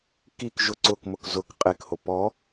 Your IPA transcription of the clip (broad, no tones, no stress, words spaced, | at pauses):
kik ʒʊ ǀʊkmʊk zʊk qʼekho pɔ